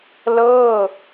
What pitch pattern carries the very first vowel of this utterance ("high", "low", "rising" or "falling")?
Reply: falling